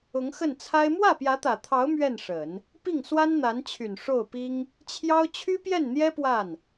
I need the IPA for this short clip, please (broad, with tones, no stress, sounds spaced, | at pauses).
ʊ˧˥ ŋ x ə˥˩ n t͡sʰ a˥ ɪ̯ m w ä˥˩ p j ä˧˥ t̪ ä˨˩ t̪ʰ ɑ˧˥ ʊ̯ m ɥ ɛ˥˩ n ʂ ə˨˩˦ n | p i˥˩ ŋ s w a˥ n n̪ a˧˥ n t͡ɕʰ y˨˩ n ʂ o˥˩ ʊ̯ p i˥ ŋ | t͡ɕʰ j ɑ˥ ʊ̯ t͡ɕʰ y˥ p j ɛ˥˩ n n̪ j ɛ˥ p w a˥˩ n